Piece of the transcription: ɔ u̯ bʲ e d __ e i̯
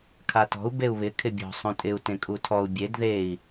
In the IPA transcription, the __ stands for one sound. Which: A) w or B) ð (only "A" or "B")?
B